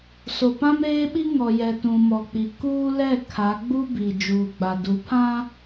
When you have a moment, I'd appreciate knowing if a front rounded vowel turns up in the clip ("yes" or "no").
no